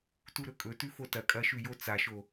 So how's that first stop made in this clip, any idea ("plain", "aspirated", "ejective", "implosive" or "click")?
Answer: plain